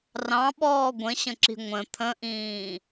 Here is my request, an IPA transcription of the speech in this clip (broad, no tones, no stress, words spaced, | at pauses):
rɑ̃ɓɔː ɡʷə̃ɕə̃ǁi̤ ŋʷə̃ t̪ʰə̃ʔĩː